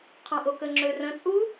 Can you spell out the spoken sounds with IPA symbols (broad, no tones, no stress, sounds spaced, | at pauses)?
qʰ ɔ̃ ʔ o k ə ŋ͡ǁ ø r ə̃ t͡sʼ u